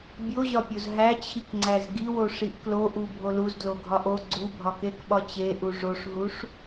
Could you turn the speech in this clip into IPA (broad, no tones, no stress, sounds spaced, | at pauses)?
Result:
bʲ o ʑ ɒ pʲ o z ɦ æ t͡ɕʰ i k ŋ͡ǀ æ z ɡ i w o ʂ i ʔ k l o ʔ u bʱ o l u z d l o ɡʱ ɒ ʔ o ɡ͡ǀ u bʱ ɒ k e k ɓ ɒ t͡ɕ e ʔ u ʐ o ʂ ɦ u ʂ